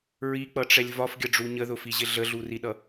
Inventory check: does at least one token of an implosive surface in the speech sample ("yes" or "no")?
yes